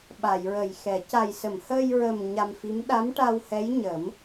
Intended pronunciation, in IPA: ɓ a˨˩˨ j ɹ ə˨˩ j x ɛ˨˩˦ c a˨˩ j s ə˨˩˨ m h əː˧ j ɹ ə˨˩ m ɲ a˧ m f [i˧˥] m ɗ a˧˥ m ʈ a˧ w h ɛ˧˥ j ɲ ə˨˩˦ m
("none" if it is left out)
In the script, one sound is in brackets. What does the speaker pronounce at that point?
i˧˥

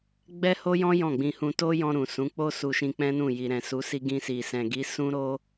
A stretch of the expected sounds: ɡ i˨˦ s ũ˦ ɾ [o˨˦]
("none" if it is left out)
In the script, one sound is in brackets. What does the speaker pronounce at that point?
o˦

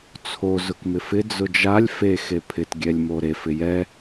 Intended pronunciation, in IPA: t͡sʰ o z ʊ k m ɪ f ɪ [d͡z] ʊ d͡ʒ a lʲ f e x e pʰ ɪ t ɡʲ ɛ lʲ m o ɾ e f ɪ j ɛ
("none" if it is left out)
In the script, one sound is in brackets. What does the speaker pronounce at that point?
d͡z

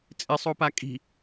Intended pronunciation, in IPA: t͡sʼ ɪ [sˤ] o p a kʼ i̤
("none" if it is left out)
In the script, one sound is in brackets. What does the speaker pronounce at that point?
sˤ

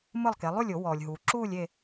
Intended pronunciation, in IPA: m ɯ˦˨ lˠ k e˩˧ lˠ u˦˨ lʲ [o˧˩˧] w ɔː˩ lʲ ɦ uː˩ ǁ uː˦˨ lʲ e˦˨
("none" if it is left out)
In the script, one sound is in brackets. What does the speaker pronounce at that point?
o˧˩˧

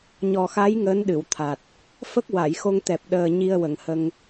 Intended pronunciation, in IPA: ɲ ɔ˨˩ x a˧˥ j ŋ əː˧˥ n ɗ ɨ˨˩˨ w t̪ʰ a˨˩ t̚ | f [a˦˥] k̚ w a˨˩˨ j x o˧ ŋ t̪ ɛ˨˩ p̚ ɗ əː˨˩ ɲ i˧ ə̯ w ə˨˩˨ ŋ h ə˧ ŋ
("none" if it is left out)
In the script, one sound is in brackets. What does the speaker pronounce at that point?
ə˦˥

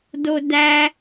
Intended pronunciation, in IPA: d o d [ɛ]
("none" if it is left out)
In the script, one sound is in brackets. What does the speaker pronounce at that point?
æ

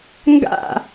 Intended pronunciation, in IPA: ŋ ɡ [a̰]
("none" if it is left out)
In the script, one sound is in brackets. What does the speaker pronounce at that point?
a̰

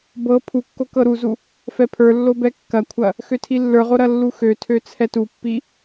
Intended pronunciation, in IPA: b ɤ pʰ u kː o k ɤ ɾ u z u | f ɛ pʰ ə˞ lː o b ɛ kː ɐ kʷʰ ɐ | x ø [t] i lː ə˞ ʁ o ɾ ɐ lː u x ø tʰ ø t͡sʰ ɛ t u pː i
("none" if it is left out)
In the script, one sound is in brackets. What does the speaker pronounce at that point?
tʰ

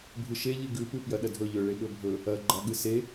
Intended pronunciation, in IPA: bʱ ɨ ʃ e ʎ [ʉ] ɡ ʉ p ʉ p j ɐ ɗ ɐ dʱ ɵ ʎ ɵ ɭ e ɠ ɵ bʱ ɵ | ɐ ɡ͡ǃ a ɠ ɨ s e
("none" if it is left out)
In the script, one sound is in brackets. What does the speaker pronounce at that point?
ɨ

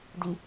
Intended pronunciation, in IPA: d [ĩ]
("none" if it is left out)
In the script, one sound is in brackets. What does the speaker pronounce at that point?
i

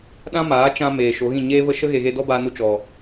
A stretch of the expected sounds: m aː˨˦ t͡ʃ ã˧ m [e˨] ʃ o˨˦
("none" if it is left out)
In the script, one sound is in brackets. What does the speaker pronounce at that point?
eː˨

